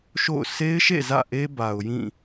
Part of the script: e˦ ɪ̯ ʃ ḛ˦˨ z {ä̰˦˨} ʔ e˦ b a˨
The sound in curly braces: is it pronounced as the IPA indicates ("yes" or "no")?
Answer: yes